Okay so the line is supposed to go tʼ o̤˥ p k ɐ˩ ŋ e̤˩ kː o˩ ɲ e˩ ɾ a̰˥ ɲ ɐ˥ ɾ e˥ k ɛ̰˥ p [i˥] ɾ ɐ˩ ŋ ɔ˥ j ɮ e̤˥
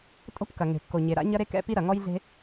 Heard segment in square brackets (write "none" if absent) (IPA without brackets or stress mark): i˥